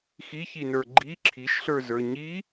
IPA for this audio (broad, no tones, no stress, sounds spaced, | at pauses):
x i ç i n ə˞ ɡ͡ǃ i ǁʰ i ʃ ɬ ə˞ z ə˞ ɲ i